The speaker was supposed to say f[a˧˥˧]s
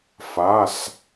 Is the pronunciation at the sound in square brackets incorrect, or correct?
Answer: correct